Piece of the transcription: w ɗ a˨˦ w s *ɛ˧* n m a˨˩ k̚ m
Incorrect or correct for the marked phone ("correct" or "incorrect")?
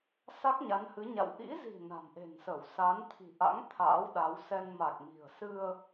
correct